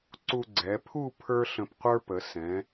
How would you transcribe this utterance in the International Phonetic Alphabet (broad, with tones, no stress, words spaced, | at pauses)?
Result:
ǀu˧ɡ͡ǀɛ˩˧pʰu˥˧ pʰə˞˥ɬə̃˧pqʷə˞˥pə˩˧ sɛ̃˩˧